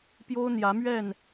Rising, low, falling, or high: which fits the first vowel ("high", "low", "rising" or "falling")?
high